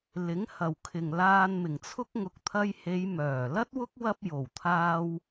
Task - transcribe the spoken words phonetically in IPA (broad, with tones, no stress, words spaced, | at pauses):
lɪ˨˥ŋhɐ˨wkʰɪ˨ŋ laː˧nmɪ˨˩ŋt͡sʰʊ˥k̚ ŋʊ˨˥k̚t̪ʰɐ˧jhe˨˧j mœː˨˩lɐ˥t̚wʊ˥k̚ wɐ˧p̚ jo˨˩wt̪ʰaː˧w